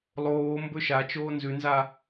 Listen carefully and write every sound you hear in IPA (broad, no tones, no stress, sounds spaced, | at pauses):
lˠ oː m b ɵ ʃ a t͡ʃ oː n z ʉ n z a